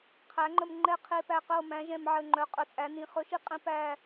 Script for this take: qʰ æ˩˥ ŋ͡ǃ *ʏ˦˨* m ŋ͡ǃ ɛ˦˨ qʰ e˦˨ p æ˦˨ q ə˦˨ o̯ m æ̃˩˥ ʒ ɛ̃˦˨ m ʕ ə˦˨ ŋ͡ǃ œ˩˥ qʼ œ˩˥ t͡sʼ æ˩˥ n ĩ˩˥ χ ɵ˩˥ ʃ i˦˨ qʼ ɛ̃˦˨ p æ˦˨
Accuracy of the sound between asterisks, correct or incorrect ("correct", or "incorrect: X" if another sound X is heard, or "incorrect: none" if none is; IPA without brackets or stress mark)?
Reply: incorrect: ə˦˨